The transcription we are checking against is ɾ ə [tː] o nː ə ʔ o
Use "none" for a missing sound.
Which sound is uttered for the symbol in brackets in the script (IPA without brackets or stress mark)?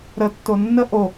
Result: tː